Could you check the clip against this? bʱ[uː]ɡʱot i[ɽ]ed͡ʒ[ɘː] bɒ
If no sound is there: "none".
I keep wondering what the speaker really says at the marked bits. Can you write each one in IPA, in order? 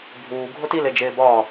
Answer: uː, l, eː

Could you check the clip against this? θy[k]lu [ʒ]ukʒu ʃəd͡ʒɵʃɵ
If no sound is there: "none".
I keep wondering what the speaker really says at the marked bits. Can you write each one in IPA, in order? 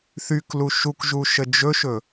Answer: k, ʃ

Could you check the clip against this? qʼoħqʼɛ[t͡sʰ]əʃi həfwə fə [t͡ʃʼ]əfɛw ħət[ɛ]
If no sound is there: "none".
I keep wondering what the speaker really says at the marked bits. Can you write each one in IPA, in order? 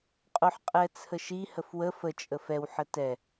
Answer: t͡sʰ, t͡ʃʼ, ɛ

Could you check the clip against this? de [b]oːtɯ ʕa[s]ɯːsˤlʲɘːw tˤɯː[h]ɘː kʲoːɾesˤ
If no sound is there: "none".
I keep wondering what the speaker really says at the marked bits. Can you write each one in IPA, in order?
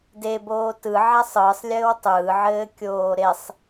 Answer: b, sˤ, ʕ

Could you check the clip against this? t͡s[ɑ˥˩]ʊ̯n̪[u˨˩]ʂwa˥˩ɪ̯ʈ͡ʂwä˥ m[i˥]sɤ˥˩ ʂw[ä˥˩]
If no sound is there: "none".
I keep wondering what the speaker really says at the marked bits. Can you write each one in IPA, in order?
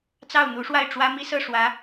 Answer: ɑ˥˩, u˧˥, i˥, ä˧˥

